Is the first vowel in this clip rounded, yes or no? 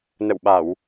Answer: no